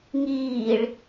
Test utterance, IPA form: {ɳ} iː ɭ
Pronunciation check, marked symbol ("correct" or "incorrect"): incorrect